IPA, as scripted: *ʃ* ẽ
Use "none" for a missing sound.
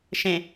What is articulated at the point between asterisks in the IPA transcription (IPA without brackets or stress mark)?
ʃ